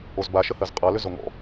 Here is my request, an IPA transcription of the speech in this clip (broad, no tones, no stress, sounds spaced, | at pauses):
o z b a ʃ ə h ɜ z qʼ ʌ l ʏ z o ŋ ɔ̰